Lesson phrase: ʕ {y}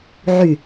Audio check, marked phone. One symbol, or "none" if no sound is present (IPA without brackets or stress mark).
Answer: y